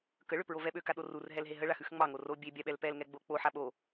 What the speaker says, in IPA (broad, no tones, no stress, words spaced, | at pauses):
kə ɭøpɹovɛɓø kaɗorur ɦɛlɦeɦə ɭaxʉxŋ͡mɑ ŋoro bʲe bʲaɓɛlpɛl ŋɛɡ͡bok͡po ħaɓo